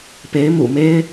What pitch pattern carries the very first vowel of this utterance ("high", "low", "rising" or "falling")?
rising